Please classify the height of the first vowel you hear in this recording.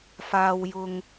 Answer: low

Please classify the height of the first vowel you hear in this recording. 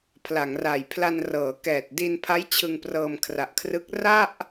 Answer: low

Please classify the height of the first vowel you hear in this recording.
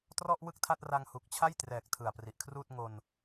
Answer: mid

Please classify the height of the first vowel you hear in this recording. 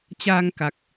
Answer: low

